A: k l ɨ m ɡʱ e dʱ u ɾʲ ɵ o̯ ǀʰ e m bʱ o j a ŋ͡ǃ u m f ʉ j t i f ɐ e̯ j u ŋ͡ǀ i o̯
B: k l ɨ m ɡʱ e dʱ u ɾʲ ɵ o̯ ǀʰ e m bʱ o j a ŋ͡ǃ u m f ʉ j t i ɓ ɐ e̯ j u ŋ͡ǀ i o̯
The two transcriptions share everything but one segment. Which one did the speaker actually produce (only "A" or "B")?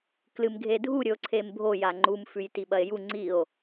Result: B